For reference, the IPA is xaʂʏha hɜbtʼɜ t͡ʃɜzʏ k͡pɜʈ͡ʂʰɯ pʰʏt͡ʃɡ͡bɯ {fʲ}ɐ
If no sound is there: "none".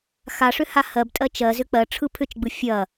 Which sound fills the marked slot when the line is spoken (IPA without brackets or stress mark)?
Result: fʲ